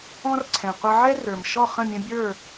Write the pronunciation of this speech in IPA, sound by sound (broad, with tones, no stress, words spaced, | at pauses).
ɔ̃˦rǀʰɛ̃˨ qʷʌ˧ʕɛ˦rə˞˨m ʃɔ˦˨χə̃˦˨mʲə̃˧bʲə˞˦˨